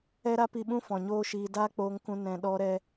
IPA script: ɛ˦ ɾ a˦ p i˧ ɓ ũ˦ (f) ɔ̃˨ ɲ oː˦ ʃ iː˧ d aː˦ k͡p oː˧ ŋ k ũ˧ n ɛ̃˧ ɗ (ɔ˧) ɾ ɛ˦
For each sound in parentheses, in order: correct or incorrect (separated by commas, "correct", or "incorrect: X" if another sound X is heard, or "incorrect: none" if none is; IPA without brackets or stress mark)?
correct, incorrect: ɔ˦